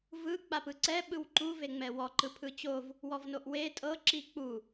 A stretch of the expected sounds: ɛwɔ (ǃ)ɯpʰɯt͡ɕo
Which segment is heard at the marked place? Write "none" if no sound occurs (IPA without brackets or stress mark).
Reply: ǃ